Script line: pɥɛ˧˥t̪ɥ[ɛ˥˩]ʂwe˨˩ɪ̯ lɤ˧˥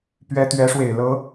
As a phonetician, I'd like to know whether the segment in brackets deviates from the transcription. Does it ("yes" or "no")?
yes